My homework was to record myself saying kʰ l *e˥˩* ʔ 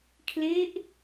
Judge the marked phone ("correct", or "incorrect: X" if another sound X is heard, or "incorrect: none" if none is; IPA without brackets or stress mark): incorrect: e˦˥